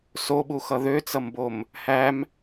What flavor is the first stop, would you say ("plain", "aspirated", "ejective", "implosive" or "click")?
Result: implosive